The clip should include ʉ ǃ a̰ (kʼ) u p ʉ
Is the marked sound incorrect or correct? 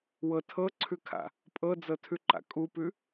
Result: correct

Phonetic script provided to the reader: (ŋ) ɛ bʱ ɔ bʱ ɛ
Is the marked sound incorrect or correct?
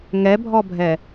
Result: correct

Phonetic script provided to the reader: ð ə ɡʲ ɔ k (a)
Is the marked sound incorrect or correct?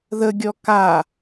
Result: correct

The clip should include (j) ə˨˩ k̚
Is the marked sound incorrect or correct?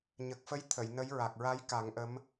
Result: incorrect: ɲ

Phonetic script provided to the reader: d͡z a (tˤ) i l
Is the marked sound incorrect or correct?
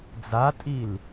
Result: incorrect: tʼ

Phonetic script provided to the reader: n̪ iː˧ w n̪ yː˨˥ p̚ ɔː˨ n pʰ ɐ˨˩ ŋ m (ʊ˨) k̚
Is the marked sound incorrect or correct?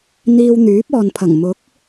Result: incorrect: ʊ˨˥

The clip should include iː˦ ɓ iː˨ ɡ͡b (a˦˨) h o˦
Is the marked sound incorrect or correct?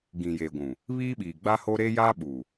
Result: incorrect: a˦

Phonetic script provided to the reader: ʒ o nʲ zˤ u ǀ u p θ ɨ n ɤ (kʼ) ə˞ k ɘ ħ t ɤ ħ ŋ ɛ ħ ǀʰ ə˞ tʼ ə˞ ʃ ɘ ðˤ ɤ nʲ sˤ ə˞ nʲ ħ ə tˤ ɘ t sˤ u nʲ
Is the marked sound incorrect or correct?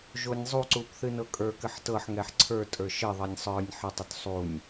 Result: correct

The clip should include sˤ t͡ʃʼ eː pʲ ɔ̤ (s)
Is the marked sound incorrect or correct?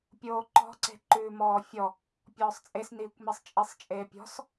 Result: correct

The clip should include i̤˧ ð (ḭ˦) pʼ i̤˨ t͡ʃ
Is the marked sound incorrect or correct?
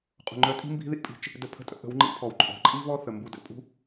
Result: correct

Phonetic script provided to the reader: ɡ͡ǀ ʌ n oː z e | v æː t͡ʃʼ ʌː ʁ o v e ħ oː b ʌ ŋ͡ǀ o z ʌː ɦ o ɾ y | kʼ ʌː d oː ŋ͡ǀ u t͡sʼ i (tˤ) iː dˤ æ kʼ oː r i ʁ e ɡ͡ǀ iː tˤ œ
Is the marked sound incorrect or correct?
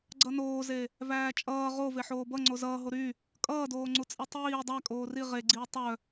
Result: correct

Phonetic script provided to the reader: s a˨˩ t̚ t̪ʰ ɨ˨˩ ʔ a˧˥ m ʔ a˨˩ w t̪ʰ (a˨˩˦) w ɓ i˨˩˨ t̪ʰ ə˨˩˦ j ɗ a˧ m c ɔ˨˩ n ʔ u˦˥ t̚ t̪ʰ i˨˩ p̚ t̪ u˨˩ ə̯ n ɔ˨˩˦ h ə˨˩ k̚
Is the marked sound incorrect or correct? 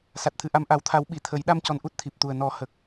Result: correct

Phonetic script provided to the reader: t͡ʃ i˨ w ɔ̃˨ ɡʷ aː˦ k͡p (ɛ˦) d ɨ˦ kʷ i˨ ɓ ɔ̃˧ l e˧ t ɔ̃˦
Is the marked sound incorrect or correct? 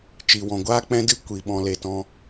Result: incorrect: ɛ̃˦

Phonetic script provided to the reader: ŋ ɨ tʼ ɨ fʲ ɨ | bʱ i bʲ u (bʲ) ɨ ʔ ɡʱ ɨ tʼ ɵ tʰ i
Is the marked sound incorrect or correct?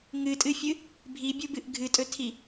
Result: incorrect: b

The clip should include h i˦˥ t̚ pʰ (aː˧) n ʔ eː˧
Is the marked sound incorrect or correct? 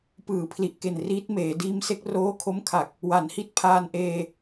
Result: correct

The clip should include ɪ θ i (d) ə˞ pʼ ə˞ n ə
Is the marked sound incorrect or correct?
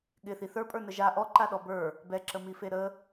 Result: incorrect: θ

